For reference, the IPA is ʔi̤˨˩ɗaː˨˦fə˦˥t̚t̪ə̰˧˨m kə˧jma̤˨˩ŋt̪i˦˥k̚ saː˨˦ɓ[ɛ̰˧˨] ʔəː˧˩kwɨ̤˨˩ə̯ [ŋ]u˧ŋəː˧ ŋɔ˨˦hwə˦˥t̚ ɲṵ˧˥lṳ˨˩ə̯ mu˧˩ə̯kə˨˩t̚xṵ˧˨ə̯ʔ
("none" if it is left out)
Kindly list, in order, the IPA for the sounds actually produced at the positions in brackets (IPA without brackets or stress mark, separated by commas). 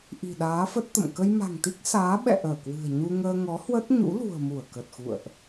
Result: ɛ̰˧˨, ɲ